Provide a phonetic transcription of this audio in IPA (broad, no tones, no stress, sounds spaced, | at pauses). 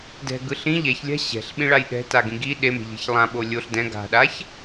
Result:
d ɛ̤ ɡ ɯ ɬ ĩ ʎ ɛ ç lʲ a̤ ɕ ɛ̤ ɬ ɓ ĩ ɭ a j ɗ ɛ̤ t a ɡ ĩ ɡ i ɗ e m e̤ ʎ e̤ ç lˠ ã ɓ o lʲ o ɬ d ɛ̃ ɡ a̤ ɗ a ç